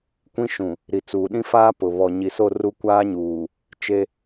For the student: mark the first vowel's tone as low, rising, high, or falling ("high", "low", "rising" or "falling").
high